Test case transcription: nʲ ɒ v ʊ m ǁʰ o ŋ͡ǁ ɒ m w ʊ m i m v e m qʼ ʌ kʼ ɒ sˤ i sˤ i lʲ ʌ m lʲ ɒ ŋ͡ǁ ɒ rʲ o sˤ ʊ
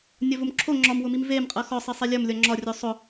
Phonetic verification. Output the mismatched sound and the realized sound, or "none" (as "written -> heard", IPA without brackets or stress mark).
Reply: kʼ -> x